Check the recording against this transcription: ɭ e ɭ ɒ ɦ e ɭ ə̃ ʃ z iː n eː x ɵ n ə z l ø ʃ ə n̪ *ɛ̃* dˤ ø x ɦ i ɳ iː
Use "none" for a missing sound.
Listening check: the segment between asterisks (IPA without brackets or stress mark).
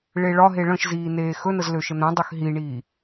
ɛ̃